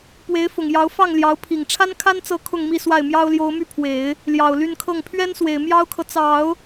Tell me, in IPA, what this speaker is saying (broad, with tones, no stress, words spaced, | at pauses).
pwe˧˥ɪ̯fʊ˨˩ŋjɑ˧˥ʊ̯ fɑ˥˩ŋljɑ˧˥ʊ̯pʰi˨˩ŋ ʈ͡ʂʰa˥nkʰa˥nt͡sɤ˧˥ kʰʊ˥˧ŋmi˥˧swa˥˩ɪ̯ mjɑ˥ʊ̯ljo˧˥ʊ̯my˥˩pʰwe˨˩˦ɪ̯ | ljɑ˨˩ʊ̯ly˥˧nkʰɤ˥˩ŋ pʰɥɛ˥nswe˨˩ɪ̯ mjɑ˥ʊ̯kʰɤ˨ t͡sɑ˨˩˦ʊ̯